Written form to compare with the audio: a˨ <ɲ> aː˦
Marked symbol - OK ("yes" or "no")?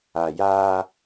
no